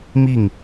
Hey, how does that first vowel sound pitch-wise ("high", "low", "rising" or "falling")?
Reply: falling